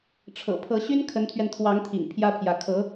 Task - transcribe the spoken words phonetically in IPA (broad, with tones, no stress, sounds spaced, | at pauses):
ʈ͡ʂʰ ɤ̰˨˩ pʰ ɤ˧˥ ɕ y˥ n kʰ ə˧˥ n t̪ʰ ɥ ɛ˧ n t̪ʰ w ɑ˧˥ ŋ t̪ʰ ḭ˨˩ ŋ pʰ j ä˥ pʰ j ä˧˥ kʰ ɤ˧˥